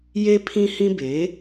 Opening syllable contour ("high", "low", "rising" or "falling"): high